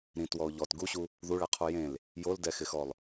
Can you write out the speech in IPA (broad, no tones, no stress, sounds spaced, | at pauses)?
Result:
ɾ ĩ t w ɔ ʊ̯ ʎ ɔ t ɡ u ɕ u | ð u ɭ ɛ qʰ u j ẽ l | j o l d ɛ x ɪ x ɔ lˠ